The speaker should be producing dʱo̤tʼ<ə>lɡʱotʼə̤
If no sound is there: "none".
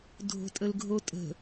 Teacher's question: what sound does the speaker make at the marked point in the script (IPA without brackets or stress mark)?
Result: ə